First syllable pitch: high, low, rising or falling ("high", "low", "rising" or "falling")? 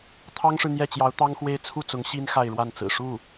high